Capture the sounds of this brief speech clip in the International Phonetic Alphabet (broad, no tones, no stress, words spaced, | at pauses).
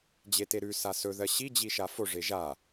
d͡ʑeteɾʉ sasɵ ðɜɕi d͡ʑiʃafo ʐeʒa